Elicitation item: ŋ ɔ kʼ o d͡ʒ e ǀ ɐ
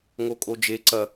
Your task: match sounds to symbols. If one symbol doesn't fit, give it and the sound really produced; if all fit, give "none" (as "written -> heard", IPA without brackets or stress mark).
ɔ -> o